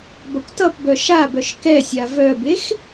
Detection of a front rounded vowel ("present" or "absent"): present